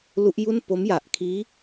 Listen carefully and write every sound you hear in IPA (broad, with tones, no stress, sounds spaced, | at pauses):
l u˦˥ ʔ j u˥˩ n p o˦˥ m j a˨˩ ʔ kʰ iː˦˥